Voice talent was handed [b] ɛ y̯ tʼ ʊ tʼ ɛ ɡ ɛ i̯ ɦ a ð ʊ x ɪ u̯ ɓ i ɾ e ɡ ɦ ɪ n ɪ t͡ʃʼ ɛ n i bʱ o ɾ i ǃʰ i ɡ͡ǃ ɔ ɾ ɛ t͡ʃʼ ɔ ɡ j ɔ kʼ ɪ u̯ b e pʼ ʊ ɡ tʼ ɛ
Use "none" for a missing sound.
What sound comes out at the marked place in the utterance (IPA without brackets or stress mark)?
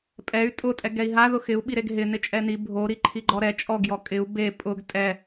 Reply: pʼ